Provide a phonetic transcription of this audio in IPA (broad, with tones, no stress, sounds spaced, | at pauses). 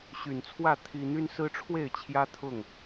ɕ y˨˩ n t͡sʰ w ä˥˨ t̪ʰ i˦ n̪ y˦ n s ɹ̩˦ ʈ͡ʂʰ w e˥˨ ɪ̯ t͡ɕʰ j ä˦ t̪ʰ ʊ˥˨ ŋ